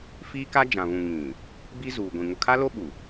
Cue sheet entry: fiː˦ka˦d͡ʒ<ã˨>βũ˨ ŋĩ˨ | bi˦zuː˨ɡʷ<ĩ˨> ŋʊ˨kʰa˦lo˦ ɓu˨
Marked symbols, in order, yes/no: yes, yes

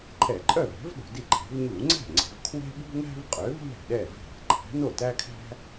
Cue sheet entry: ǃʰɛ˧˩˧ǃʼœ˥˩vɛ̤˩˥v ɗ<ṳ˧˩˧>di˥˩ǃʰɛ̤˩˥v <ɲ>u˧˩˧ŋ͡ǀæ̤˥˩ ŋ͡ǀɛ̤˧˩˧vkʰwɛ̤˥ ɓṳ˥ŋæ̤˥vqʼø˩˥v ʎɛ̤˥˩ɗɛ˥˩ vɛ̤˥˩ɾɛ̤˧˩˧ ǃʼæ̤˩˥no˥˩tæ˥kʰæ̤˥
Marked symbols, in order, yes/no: yes, yes

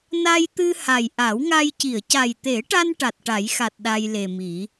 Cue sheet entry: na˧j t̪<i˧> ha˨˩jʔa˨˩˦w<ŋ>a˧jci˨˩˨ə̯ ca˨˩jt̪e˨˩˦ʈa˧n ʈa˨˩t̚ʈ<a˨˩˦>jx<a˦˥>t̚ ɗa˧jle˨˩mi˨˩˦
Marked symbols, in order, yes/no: no, yes, yes, no

